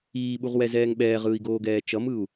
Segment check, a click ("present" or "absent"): absent